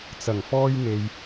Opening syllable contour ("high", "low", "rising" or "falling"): low